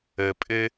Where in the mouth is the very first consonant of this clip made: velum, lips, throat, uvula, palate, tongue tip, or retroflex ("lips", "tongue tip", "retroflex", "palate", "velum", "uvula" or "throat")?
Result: lips